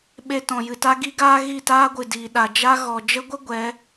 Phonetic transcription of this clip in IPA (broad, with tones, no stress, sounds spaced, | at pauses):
ɓ e˧ t ɔ̃˨ j ɨ˨ t a˦ ɡ i˦ ɡ aː˦ ɣ i˦˨ t aː˦ ɡʷ ɨ˨ d iː˨ ɗ a˨ d͡ʒ a˦ ɣ ɔ˨ d͡ʒ ə˦ ɡʷ ə˦ ɡʷ ɛ˨˦